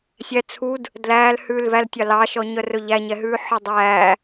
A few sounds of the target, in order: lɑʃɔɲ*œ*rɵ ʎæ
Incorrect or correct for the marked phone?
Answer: correct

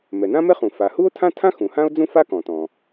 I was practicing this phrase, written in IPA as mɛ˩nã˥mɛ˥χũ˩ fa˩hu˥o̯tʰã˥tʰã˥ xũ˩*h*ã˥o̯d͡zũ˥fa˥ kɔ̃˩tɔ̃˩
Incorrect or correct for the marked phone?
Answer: correct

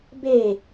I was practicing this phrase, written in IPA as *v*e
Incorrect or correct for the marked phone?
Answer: incorrect: b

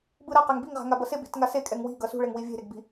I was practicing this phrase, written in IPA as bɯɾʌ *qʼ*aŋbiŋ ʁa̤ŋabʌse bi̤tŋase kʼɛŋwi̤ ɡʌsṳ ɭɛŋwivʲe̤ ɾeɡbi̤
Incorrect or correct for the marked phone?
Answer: incorrect: q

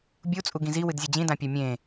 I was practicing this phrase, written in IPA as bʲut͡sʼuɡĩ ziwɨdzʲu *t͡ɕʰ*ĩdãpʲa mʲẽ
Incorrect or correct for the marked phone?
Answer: incorrect: d͡ʑ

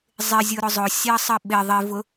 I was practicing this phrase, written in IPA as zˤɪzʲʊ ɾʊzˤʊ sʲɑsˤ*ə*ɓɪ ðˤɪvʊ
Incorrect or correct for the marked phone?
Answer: correct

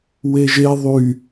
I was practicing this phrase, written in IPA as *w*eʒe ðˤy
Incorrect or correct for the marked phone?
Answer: correct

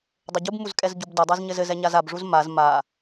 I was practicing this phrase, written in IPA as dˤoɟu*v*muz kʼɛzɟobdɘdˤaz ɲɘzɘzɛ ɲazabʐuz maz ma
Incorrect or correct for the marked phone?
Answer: incorrect: b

